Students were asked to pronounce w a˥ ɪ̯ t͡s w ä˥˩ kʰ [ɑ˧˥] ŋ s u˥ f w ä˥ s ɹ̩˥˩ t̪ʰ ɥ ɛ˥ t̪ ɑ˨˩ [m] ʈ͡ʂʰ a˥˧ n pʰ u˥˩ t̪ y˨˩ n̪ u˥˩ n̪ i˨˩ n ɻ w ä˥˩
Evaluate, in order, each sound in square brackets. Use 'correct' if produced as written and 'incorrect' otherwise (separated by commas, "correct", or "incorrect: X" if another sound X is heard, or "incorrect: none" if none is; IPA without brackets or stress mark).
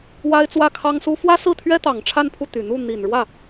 incorrect: ɑ˥, incorrect: ŋ